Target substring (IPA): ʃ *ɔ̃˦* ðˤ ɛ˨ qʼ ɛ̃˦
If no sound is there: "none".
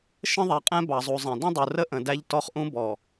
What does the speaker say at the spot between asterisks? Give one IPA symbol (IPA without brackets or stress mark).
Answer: ə̃˦